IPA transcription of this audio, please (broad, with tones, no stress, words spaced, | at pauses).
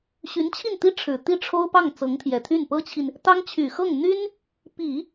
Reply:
ɕy˧˥nt͡ɕʰi˥˩nt̪i˥ ʈ͡ʂʰɻ̩˨˩t̪i˥˩ʈ͡ʂʰo˥ʊ̯ pɑ˥˩ŋ t͡sɤ˧˥ŋt̪ʰjɛ˨˩t̪ʰy˥˩n pɤ˥t͡ɕʰi˨n | t̪ɑ˥ŋt͡ɕʰy˨˩xɤ˥˩ŋn̪y˥n | pi˨˩˦